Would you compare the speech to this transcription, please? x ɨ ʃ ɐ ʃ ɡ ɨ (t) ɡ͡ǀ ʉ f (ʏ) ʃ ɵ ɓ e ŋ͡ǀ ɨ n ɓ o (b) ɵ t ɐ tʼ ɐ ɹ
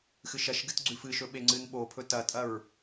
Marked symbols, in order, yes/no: yes, no, no

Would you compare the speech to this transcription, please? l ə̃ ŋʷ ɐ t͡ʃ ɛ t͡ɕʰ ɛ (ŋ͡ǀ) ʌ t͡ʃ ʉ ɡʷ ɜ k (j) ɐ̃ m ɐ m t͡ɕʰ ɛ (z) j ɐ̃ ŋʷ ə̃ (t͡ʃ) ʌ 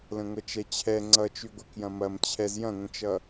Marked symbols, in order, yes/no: yes, yes, yes, yes

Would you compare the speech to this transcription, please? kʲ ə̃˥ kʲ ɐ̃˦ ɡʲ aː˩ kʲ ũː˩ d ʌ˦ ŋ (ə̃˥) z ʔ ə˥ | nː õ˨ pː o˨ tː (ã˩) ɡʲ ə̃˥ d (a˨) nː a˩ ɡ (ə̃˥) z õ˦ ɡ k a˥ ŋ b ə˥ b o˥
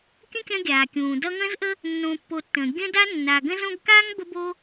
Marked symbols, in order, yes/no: yes, no, no, yes

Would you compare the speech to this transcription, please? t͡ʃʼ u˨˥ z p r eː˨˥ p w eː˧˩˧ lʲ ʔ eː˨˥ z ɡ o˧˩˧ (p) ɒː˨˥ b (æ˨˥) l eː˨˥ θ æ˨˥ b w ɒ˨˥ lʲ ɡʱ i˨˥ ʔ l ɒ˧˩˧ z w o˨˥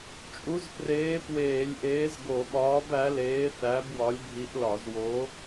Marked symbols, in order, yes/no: no, yes

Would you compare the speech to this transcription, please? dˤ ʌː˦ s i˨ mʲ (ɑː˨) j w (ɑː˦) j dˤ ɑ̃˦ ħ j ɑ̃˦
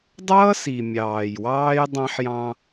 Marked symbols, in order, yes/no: yes, yes

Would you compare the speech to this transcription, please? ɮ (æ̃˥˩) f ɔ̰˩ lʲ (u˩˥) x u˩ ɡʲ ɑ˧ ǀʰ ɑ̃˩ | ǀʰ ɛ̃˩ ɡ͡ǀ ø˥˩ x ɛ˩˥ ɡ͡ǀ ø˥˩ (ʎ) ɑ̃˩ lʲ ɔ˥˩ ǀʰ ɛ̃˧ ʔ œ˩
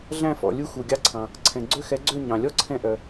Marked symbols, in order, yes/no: yes, no, no

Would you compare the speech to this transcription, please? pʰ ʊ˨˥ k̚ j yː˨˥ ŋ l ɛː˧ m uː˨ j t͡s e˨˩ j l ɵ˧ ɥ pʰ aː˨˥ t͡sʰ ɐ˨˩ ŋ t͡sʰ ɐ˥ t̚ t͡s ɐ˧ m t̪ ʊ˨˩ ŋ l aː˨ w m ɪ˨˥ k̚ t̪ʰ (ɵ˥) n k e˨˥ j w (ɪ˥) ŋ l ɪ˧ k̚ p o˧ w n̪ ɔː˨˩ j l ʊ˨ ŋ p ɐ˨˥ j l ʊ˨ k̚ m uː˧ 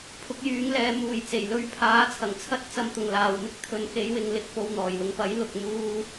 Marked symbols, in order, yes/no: no, no

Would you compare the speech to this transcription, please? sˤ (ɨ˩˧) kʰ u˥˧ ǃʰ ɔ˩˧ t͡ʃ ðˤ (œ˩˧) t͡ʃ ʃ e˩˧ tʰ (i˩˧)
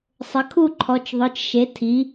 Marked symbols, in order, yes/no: no, yes, yes

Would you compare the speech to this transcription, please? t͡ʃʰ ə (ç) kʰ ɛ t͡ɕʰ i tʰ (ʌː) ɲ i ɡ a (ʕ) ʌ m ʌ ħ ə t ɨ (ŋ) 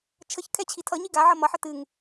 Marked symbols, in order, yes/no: yes, no, yes, yes

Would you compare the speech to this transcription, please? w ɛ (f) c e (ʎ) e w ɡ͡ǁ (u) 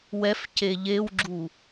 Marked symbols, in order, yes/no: yes, yes, yes

